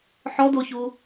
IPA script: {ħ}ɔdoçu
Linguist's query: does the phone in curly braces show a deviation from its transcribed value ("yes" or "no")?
no